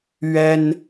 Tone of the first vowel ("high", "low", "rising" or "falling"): high